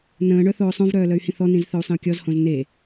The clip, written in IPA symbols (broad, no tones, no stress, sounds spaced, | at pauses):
n ə̃ː ɳ œ θ oː sˤ õ v ɾ œː l œ y̯ h ĩ θ ɔ n ĩ z θ œ u̯ sˤ ĩ u̯ kʲ ɔ z h õ z n e